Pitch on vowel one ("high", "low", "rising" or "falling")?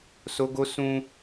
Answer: high